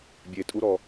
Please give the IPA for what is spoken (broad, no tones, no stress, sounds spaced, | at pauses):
bʲ e tʼ u ɾ ɔ